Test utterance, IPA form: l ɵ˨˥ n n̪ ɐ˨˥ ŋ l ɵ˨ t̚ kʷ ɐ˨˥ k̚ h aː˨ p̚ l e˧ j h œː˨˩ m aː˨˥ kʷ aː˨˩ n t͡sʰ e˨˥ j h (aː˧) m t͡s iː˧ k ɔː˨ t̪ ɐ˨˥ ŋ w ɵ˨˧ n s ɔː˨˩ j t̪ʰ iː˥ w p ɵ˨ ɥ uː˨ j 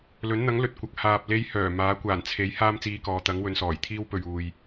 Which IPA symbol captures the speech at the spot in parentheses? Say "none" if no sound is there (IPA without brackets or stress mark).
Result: aː˥